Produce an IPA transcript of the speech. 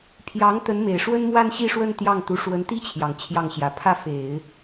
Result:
pʰjɑ˧˥ŋ t̪ə˧˥nme˨˩ɪ̯ ʂwə˥nmwa˥˧nɕi˥˧ʂwə˥˧n t̪jɑ˥˩ŋt̪u˧˥ ʂwə˧˥nt̪i˥ t͡ɕʰjɑ˨˩ŋt͡ɕʰjɑ˥˩ŋɕjä˨˩ pʰä˥˩fe˨˩˦ɪ̯

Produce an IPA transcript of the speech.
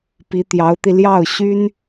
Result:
pi˧˥t̪jɑ˧˥ʊ̯t̪i˧ljɑ˥˩ʊ̯ ɕy˥n

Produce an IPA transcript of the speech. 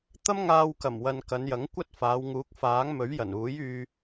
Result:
t̪ɐ˥m ŋaː˧wkɐ˨˩mwɐ˨n kɐ˨˧njɐ˨˥ŋkʷɐ˥t̚faː˨˧w ŋuː˨˥k̚faː˨˥ŋmɵ˨˥ɥ jɐ˨˩nuː˨˥jyː˧

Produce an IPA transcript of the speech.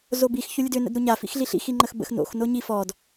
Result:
zobix çolʲədø nə̰dɾuɲa fḭxɮiɬḭx iŋ͡ǃəxbə̰x no̰x noɲifɔd

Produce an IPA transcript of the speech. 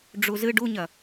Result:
ɖ͡ʐuzɨ ɖuɲɐ

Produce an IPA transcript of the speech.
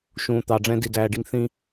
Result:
ʃũː˨t̪ɑ˨ɖ͡ʐɛ̃˦ di˨dæː˨ɖi˦ŋ θĩ˦

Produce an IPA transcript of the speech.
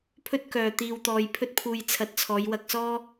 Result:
pʰɵ˥t̚kœː˨ t̪iː˨wt̪ɔː˨j pʰɵ˧t̚pʰuː˨jt͡sʰɐ˨t̚ t͡sʰɔː˨˧jwɐ˧k̚sɔː˥

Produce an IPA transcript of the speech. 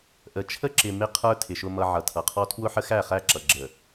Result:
ʔə˨t͡ʃʰə˦ǁɪ˨ mɪ˦qʰə˞˦tʰɪ˨ ʃʊ˨mʌ˨ ʕʌ˨tʰʌ˨qʰɔ˦ tʰwʊ˦ħə˦xæ˦˨ χæ˦˨ǁʌ˨ɡ͡ǁə˨

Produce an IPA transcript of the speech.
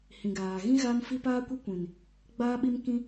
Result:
hĩ˨ɡaː˨ ɣĩ˦ ɣa˦nfi˦ paː˦kʷi˦ kʷĩ˨n | ɡ͡baː˦ɓi˦m kĩ˦

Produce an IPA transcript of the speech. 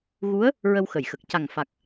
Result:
ɣu˧˥ə̯ | ɹə˧wxə˨˩˨jxə˨˩k̚ ca˨˩ŋfa˨˩k̚

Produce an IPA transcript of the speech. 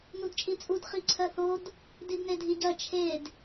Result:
nudt͡ʃʼit͡sʼud χiǀʰɜθod | didnedʱiɟɜ t͡ʃʰed

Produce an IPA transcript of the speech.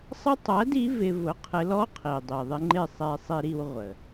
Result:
sˤə˦tˤæ˨˦di˨˦ vɪ˧vʊ˨˦ qʰɪ˧lɔ˦qʰi˨ dˤi˨ðˤɪ˧ŋ͡ǃɪ˦˨ sˤɛ˧sˤi˧ɾi˧w ʁʷə˨

